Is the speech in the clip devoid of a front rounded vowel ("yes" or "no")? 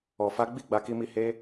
yes